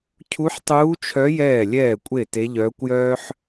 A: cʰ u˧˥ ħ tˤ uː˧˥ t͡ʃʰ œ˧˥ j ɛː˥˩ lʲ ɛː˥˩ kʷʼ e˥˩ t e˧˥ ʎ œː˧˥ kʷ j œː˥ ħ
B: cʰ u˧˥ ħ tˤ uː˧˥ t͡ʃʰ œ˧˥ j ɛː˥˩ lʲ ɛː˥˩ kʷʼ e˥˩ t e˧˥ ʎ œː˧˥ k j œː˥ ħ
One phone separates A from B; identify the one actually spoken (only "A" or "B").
A